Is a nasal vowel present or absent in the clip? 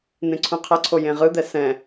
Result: present